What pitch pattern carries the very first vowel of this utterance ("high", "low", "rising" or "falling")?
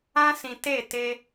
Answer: high